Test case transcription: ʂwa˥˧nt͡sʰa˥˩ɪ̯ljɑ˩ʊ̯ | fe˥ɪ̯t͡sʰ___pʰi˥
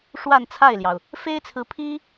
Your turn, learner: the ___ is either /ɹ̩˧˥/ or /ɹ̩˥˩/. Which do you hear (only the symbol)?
ɹ̩˧˥